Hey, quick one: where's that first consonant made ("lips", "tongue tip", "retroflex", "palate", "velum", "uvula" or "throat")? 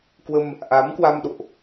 velum